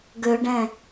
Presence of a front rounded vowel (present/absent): present